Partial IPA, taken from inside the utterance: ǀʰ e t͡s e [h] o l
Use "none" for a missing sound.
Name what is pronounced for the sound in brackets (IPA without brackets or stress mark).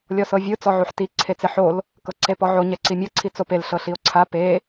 ħ